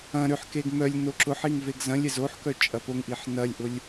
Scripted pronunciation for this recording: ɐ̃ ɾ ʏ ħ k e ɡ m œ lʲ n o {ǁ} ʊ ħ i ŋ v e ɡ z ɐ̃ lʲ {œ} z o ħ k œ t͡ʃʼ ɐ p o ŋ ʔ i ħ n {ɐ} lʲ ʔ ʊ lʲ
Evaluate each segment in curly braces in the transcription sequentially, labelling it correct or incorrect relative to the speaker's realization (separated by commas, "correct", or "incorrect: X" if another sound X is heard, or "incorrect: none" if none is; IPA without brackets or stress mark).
correct, incorrect: ɛ, correct